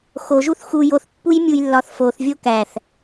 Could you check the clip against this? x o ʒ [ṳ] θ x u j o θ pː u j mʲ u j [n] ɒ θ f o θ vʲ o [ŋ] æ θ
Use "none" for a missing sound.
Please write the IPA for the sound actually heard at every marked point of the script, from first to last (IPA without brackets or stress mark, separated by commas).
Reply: u, lː, k